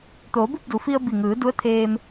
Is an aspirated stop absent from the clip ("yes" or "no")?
no